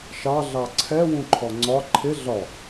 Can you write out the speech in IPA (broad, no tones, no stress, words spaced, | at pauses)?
ʃɑ ɮɑǀʰɛ wũǃʰɔŋ͡ǀɒ ǃʰɪ ɮɒ